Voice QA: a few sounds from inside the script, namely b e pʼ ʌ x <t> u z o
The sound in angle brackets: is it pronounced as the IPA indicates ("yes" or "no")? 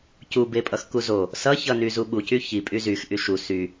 no